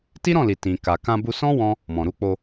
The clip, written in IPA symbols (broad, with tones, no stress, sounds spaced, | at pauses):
t i˦ ɾ ɔ̃˦˨ l i˨ t ĩ˨ k a˨ k ã˧ b u˧ s ɔ̃˦ w ɔ̃˦ | m ɔ̃˨ ɾ u˨˦ k͡p o˧